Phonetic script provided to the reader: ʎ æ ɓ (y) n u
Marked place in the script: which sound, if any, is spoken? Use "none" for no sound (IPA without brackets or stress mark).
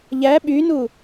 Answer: y